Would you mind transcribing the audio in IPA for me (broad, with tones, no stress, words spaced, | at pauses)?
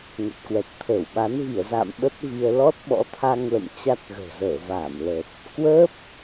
ŋə˨˩t̚kwɛ˨˩t̚t̪ʰəː˧˩wɓa˨˦n vi˧˩ə̯za̰ː˧˨m ɓə˦˥t̚vi˧ə̯ lɔ˦˥t̚ɓɔ̰˧˥t̪ʰa˧ŋlə̰˧˨m t͡ɕa˦˥t̚ɣə̤ː˨˩ zəː˧˩vaː˧˩mləː˨˩t̚ | kwəː˦˥p̚